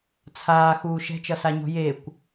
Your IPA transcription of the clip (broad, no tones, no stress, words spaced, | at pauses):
t͡sʰaːxuː ʃɛ̤t͡ʃʌsaɲo̤ jekʷ